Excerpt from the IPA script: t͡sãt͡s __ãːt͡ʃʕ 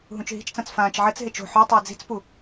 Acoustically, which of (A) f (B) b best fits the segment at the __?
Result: A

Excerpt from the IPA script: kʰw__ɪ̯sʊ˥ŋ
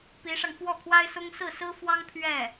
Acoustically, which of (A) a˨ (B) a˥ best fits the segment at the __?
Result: B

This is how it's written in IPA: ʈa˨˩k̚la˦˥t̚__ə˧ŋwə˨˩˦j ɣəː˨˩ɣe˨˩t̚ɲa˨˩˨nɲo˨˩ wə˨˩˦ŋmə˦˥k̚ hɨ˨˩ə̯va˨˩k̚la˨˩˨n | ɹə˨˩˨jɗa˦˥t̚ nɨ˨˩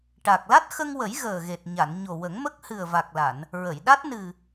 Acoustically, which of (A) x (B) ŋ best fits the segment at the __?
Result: A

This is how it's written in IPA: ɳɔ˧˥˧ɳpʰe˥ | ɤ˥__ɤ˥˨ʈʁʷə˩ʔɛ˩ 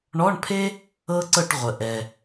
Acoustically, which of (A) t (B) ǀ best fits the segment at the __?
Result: B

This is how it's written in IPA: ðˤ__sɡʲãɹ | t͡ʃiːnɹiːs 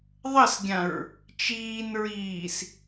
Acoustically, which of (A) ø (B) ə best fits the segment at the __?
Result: B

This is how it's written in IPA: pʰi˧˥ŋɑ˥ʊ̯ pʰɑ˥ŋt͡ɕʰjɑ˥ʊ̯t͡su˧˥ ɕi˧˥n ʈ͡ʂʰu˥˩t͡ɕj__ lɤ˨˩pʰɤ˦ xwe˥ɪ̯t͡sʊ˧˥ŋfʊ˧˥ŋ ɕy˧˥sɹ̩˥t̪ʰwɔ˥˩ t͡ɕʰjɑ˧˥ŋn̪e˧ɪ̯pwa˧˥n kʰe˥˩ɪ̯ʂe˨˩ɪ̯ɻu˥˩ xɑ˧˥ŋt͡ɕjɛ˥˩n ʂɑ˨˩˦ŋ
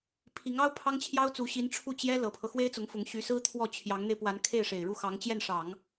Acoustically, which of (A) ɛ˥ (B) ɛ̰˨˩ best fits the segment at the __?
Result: A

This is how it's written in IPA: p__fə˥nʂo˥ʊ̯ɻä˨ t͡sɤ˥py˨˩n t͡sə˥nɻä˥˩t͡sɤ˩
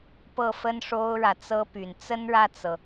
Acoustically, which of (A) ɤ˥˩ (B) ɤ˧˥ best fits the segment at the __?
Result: A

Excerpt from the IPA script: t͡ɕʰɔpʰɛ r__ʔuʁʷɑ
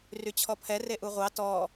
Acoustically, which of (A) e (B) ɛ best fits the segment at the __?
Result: A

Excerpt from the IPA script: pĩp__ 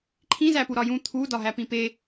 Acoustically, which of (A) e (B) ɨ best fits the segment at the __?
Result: A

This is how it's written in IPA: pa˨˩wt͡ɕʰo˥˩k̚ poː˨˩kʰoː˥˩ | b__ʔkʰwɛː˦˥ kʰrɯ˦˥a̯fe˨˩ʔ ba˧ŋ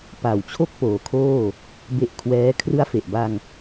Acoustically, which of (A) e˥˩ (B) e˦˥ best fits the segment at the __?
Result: B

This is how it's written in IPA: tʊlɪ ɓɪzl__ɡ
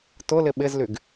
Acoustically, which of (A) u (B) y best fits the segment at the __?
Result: B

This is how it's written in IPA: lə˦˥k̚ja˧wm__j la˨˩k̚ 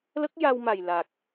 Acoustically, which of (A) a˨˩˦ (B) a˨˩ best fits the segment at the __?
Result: B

